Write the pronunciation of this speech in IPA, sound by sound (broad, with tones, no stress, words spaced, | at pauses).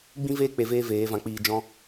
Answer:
ɡ͡bĩ˦veː˦ k͡pe˧veː˦veː˨˦ vã˧k͡piː˧d͡ʒɔ̃˦